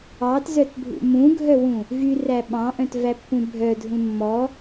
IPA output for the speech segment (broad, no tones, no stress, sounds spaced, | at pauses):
ɑ t z œ t bʱ ṵ m ũ ɡʱ œ w ũ | v y r æ ɓ ɑ̃ ʔ œ̃ t v æ pː ũ bʱ œ dʱ ũ mː ɔ